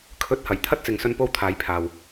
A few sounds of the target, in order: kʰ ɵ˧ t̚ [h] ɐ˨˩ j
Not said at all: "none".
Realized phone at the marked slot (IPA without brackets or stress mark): h